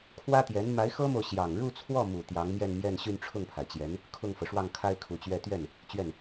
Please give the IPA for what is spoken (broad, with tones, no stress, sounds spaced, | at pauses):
kʰ w ä˥ t̪ j ɛ˧˥ n m a˧˥ ɪ̯ x ɤ˥ m o˨ ʊ̯ ɕ j ɑ˨˩ ŋ ɻ u˥˧ t͡sʰ w ɔ˥˩ m u˨˩ t̪ j ɑ˧˥ ŋ m j ɛ˥˧ n m j ɛ˥˧ n ɕ y˥˧ n ʈ͡ʂʰ ʊ˥˩ ŋ pʰ a˩ ɪ̯ t͡ɕ j ɛ˧˥ n | kʰ ʊ˥˩ ŋ f ɤ˩ ʂ w ɑ˥˩ ŋ kʰ a˥ ɪ̯ kʰ u˨˩ t͡ɕ ɥ ɛ˥˧ t̪ ɥ ɛ˥˩ n | t͡ɕ ɥ ɛ˥˩ n